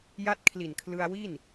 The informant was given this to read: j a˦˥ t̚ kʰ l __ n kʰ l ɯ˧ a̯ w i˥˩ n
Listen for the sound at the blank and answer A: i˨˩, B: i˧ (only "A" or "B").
A